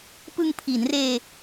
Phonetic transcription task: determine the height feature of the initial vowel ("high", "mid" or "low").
high